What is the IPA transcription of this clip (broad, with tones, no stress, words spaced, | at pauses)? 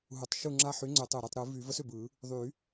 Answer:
ɦu˨˩tˤʃu˥˩ŋ͡ǁa˥˩ ħy˨˥ŋ͡ǀʏ˨˩˦ tˤɯ˨˩ ɾy˥˩tˤɾɯ˨˩˦vy˨˩˦ və˨˥sʏ˨˩bɯ˨˩˦ | ðˤy˨˩˦